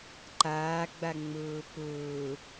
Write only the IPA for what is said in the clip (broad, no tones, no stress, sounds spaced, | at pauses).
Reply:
ǃ aː ɡ͡b a ŋ͡m ʊː p ʊː